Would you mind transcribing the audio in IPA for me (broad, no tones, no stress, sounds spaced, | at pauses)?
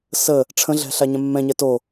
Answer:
s ə | ʈ͡ʂʰ ə̃ ɮ ɛ̤ ɬ a ɲ ɛ̃ mː ɛ̃ ɲ ɛ t o